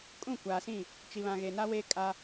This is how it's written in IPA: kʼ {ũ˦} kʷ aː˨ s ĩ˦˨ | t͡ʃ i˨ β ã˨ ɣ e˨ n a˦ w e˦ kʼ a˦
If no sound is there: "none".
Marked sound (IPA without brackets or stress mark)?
ũ˦˨